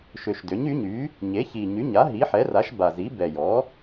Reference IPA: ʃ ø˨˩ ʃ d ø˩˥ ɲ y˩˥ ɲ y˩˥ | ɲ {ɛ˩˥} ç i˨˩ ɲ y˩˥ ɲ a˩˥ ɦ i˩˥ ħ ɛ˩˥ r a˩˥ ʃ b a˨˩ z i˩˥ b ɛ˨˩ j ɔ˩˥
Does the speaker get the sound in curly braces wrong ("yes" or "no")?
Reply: yes